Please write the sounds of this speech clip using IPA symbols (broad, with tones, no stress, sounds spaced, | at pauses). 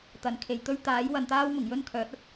t̪ ɐ˨ n kʰ e˨ j t̪ ɵ˥ ɥ t̪ aː˨˥ j w ɐ˨ n t̪ aː˥ w m ʊ˨˩ ŋ j ɵ˥ n kʰ œː˨˥ t̚ ɐ˥ t̚